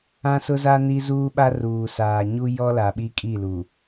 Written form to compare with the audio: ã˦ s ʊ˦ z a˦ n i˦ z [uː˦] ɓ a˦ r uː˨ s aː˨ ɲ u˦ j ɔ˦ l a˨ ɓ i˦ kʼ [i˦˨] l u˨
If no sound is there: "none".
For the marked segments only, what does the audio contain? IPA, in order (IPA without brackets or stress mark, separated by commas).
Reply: uː˦, i˦˨